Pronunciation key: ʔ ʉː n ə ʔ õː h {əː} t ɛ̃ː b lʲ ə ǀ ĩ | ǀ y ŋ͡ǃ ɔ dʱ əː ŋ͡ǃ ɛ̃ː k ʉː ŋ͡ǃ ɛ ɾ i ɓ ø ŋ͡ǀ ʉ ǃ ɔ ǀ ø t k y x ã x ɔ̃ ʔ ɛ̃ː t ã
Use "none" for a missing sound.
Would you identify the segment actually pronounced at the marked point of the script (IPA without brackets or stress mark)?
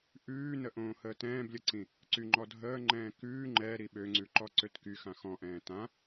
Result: əː